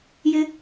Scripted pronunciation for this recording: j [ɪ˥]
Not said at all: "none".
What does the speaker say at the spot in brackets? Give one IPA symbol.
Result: ɪ˥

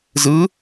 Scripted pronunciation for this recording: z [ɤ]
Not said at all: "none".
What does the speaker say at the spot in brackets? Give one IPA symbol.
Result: ɯ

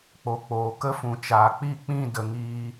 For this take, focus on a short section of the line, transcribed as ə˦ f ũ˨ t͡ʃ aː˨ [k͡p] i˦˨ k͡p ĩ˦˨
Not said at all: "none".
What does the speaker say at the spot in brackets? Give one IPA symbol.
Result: k͡p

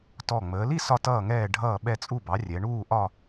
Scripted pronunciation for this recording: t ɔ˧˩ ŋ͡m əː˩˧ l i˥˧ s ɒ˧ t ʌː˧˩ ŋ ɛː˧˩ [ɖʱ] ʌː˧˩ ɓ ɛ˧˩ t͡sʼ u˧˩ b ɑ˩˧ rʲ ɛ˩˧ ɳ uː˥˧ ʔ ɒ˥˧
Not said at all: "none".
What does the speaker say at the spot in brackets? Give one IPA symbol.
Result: ɖʱ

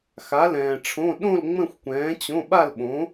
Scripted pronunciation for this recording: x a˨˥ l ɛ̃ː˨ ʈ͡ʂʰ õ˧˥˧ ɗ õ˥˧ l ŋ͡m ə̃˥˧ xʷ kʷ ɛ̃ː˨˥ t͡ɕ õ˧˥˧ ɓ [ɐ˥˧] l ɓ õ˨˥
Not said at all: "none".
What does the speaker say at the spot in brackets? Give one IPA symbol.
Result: a˥˧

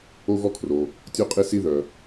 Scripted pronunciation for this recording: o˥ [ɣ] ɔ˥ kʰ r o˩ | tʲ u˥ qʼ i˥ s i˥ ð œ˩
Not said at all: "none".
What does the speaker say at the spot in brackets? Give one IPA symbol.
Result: ɣ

